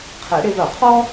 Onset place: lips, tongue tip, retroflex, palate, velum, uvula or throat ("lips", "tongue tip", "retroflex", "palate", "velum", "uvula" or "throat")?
uvula